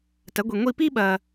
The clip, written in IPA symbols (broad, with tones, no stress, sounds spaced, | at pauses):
t ɐ˨˥ ɡʷ i˨ ŋʷ i˥˧ p i˥ ɓ ɐ˨